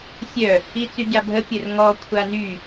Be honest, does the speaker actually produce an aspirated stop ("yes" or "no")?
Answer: yes